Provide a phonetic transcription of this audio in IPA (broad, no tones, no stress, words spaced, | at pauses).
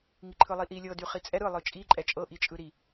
ŋiǃʰɯlˠiʔi lʲɤdy χit͡sʼɛ ɾɯ lˠɯt͡ʃʼiǃʼɛ t͡ʃʼɤʔit͡ʃʼɯ ɾi